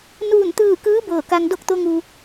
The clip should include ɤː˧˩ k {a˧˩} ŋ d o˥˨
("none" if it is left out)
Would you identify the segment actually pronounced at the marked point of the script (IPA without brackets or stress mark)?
a˧